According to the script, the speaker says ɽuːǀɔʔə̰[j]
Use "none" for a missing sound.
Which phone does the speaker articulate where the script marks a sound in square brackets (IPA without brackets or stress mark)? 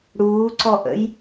j